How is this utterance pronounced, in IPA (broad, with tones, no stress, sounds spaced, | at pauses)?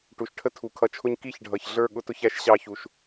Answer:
ʈ u˨ ʃ ʈʰ ə˦ tʰ u˨ kʰ ʌ˧ t͡ʃʰ ʊ˦ ɲ k i˦˨ ç ɖʱ ʌ˨ ç ɮ ə˞˦˨ ɠ ʊ˦ t ʊ˧ ç æ˦ ʃ ɕ ɑ˦˨ ç u˨ ʃ